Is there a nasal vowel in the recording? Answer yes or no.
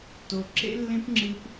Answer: yes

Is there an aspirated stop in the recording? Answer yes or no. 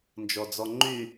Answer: no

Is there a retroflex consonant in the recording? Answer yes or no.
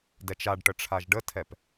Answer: yes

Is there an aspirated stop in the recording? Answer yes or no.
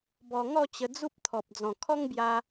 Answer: yes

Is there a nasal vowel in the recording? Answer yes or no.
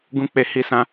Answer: yes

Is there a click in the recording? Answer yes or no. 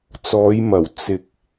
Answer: no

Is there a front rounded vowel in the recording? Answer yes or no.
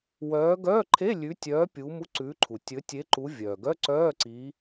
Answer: yes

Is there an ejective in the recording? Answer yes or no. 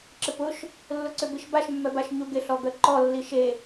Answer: no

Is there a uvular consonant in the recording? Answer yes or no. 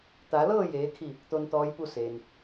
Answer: no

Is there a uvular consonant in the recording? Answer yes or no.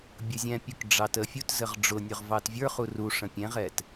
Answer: yes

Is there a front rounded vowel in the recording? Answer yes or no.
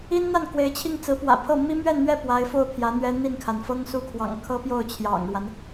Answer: no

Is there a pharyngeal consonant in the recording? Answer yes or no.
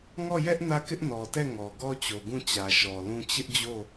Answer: no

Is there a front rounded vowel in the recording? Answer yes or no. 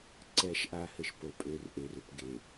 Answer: yes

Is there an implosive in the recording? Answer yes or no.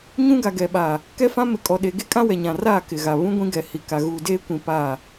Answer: yes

